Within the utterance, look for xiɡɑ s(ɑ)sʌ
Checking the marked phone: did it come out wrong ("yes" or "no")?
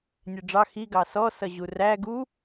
yes